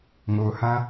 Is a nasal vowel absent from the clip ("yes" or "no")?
no